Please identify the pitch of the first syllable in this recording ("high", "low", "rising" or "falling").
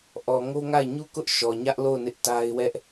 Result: low